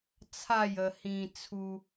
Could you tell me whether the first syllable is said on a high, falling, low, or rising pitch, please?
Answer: falling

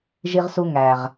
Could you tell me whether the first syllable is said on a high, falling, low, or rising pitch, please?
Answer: high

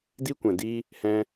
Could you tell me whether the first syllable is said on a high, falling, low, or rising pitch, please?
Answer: high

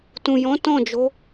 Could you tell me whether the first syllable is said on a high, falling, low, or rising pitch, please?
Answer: low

